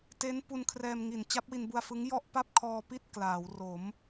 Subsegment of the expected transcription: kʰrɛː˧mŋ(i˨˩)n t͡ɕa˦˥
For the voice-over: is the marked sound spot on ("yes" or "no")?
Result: yes